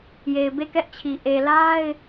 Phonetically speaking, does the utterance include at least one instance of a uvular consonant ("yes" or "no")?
no